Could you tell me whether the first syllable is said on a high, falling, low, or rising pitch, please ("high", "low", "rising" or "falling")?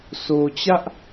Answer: low